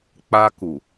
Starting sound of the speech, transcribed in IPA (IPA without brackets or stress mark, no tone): k͡p